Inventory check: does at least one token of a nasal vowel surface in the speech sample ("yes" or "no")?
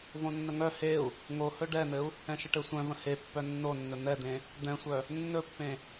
yes